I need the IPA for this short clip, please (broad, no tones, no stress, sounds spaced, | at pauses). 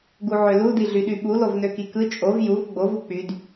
ɡ u ʕ ø l u d i ɮ y ɗ y ɓ u l o v n ø k i k ɯ t͡ʃʼ o v j u v ɡ͡b o v u k͡p y d